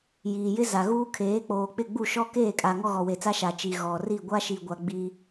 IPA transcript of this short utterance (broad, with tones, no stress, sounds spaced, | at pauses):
j iː˨ j ɪ˦ z a˨ ɣ uː˦ kʰ eː˨˦ k͡p oː˨ k͡p ɪ˦˨ ɡ͡b u˦˨ ʃ ɔ˦ k eː˦˨ kʼ a˨ ŋ ɔ˦ ɣ ɔ˨ w e˨ t͡s a˦ ʃ a˨ t͡ʃ i˨ ɣ ɔ˨ r i˦˨ ɡʷ a˦ ʃ i˨ ɡʷ a˨ ɡ͡b i˦